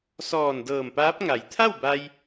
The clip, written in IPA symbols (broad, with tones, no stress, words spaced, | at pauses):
sɔː˧˩ndɤː˧˩mpaː˧˥p̚ ŋa˩˧jt̪ʰa˥˨wba˧j